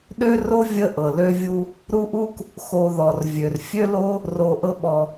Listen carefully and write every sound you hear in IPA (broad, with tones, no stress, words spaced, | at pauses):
ɗø˥ro˥ vʲə˦ʔɤ˩ lø˦vʲu˦ | ɾu˦ʔu˥k | xo˨ðɔ˩r vʲø˩r fʲø˥lo˥ | ro˨ ʔɤ˦ɓɔ˨